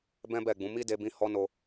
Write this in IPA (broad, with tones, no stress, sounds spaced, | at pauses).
b ɛ̃˦ b ɛ˦˨ ɡ͡b ũ˨˦ m i˦ d e˧ b ĩ˧ h ɔ˦ n o˧